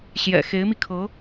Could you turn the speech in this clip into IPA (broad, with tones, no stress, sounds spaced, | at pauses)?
ɕ j ɛ̰˨˩ x e˧˥ ɪ̯ m i˧ kʰ ɤ˧˥